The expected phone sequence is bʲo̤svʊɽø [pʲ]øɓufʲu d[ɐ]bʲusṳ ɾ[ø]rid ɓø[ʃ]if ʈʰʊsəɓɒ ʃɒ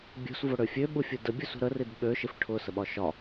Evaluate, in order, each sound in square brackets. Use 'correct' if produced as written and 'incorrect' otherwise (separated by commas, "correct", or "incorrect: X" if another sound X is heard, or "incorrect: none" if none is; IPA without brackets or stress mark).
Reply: incorrect: fʲ, incorrect: ə, incorrect: ə, correct